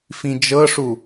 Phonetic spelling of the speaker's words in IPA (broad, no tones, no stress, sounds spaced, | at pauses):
f ĩ d͡ʒ ɤ ʂ u